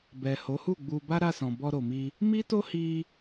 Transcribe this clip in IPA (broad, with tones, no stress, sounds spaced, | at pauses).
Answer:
b ɛ˨ h o˨˦ h u˦˨ ɡ͡b u˧ b a˦ ɾ a˦˨ s ɔ̃˨ b ɔ˧ ɾ o˨ m i˧ | m i˦ t o˦ h i˧